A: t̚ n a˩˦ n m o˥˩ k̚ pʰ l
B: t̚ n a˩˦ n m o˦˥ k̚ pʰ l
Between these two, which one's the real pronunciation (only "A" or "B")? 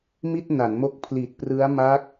B